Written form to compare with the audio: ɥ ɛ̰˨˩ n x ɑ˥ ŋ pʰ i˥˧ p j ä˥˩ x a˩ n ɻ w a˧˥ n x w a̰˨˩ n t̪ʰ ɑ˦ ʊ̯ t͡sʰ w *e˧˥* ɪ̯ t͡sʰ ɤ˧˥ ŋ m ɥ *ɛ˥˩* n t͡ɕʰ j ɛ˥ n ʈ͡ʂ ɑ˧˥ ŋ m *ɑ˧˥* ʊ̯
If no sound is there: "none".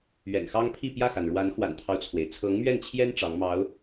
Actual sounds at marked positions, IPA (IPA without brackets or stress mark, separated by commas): e˩, ɛ˥˩, ɑ˧˥